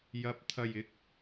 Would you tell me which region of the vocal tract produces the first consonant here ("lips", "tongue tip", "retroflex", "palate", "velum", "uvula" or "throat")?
palate